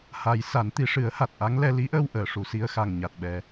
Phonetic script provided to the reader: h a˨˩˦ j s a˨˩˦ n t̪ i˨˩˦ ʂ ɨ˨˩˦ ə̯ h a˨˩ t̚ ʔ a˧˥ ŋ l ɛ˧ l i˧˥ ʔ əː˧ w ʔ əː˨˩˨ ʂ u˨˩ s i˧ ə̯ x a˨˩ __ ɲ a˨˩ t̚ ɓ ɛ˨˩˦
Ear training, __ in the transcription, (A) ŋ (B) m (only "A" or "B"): A